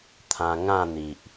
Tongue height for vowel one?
low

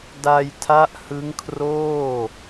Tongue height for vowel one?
low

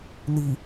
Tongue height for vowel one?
high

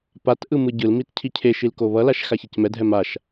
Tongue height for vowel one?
low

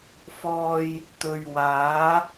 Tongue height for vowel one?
mid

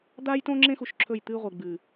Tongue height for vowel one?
low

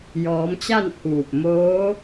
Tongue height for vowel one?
mid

